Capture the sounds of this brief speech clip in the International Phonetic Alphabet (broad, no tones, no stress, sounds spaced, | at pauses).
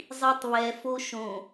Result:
zˤ i tˤ β ɛ f o ʃ õ